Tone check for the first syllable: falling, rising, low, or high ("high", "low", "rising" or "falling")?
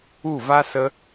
falling